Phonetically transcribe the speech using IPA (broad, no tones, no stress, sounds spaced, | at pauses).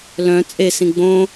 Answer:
l œ̃ t͡sʼ e s ĩ ɡ͡b õ